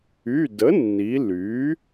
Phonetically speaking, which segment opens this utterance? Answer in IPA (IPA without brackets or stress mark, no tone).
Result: y